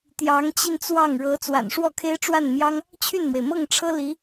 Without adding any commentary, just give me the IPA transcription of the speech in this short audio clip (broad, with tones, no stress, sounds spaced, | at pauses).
t̪ j ɑ˧˥ ŋ t͡ɕ i˧ n t͡s w ɑ˥˩ ŋ ɻ ɤ˧˥ t͡s w a̰˨˩ n ʂ w ɔ˥˩ kʰ e˥ ɪ̯ ʈ͡ʂ w a˥˩ n m j ɑ˥ ŋ | t͡ɕʰ y˥˩ n m w e˩ ɪ̯ m ɤ˥˩ ŋ ʈ͡ʂʰ ɤ˥ l i˧˥